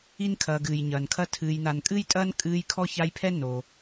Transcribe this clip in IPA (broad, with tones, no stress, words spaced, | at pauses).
i˦nkʰɐː˨ɡɨː˩j ɲɐː˩nkʰɐ˦ tʰɨː˨jna˨nkʼɨː˥jtʼɐː˥n kʼɨː˥j kʰɔ˥ça˦jpʰɛ˥ no˩